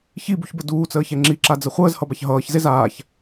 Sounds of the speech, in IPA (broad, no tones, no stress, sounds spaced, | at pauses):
ç i b u ç b ə d uː t͡s əː ç ɛ ŋ͡ǁ i ǁ a d͡z ə χʷ əː z h ʌ b a ç ɦ ʌː ç z e z aː ç